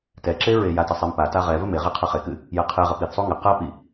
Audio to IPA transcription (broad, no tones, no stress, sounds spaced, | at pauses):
t ɛ ǁ e ɹ e j a t ɐ sˤ e m p a t a ʁ ɛ v ɘ m e ʁ i qʰ ɘ χ e k ɨ | j ɛ qʰ e ʁ ɘ p i θ sˤ u ŋ ɘ q ɐ p i